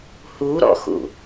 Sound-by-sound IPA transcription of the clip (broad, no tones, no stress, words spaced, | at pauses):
huɾɔ̰xṵ